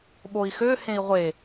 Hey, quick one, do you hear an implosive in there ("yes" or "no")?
yes